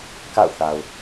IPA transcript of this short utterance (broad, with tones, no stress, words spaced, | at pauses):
ka̰˦˨ʊ̯θa˨ʊ̯